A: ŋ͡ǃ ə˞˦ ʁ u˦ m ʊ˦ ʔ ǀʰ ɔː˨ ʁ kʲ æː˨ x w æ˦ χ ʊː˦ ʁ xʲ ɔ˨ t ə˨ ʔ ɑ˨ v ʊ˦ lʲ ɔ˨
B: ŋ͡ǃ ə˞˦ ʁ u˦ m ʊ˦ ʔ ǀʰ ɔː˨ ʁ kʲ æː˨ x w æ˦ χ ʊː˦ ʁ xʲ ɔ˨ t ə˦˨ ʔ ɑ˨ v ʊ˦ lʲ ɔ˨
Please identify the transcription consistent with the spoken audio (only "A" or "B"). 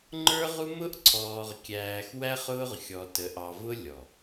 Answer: A